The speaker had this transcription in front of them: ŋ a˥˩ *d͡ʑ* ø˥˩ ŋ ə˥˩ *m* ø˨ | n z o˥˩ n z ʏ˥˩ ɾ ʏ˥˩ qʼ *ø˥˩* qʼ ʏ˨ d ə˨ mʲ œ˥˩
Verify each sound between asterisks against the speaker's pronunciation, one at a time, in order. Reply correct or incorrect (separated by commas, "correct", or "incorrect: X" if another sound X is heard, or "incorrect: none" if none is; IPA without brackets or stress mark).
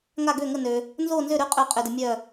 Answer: incorrect: ɡ, incorrect: n, incorrect: ø˨